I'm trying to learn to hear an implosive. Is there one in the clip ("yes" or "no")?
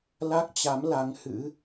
no